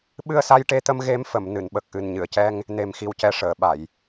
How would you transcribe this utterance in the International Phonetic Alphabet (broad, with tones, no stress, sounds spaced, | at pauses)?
ɓ ɨ˧ ə̯ s a˧ j ʈ e˧ t̪ ə˧ m ɣ e˧˥ m f ə˨˩˨ m n ɨ˨˩˨ n ɓ ə˨˩ k̚ ʔ ɨ˨˩ n ɲ ɨ˨˩˨ ə̯ c ɛ˧ ŋ | n e˨˩ m x i˨˩ w c ɛ˨˩ ʂ əː˨˩˨ ɓ a˨˩˨ j